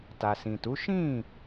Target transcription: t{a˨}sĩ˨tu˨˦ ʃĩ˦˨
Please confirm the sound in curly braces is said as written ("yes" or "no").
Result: yes